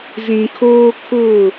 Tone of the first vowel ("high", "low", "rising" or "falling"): low